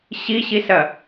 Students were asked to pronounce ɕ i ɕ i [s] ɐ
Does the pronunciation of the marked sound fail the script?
no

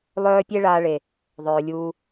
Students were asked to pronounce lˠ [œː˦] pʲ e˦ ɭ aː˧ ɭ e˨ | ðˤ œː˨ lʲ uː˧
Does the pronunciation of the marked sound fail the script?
no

